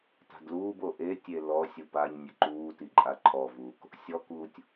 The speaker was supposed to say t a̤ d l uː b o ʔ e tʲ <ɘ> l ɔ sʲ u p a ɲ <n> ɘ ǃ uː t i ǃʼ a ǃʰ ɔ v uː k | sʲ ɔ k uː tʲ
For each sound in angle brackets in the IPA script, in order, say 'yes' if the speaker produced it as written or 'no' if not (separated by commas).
no, no